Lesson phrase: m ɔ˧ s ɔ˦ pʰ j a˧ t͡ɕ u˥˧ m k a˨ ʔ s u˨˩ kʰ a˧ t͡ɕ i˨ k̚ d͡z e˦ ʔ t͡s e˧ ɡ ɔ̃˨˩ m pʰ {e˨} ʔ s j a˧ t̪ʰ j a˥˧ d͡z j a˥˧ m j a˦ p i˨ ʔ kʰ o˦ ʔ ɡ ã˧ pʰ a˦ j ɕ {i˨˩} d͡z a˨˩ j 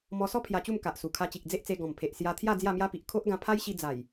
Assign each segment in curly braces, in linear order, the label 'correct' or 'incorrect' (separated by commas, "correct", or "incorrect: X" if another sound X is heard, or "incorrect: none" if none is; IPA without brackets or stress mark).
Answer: correct, incorrect: i˧